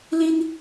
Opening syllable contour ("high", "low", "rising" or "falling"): high